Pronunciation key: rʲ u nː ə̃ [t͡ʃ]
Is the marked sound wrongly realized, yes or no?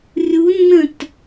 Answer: yes